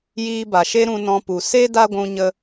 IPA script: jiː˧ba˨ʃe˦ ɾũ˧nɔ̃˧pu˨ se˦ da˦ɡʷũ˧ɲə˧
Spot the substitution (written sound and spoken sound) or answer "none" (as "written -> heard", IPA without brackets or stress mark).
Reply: none